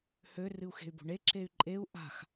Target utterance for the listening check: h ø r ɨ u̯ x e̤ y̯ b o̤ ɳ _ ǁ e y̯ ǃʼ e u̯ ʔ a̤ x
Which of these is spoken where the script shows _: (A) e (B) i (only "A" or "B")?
A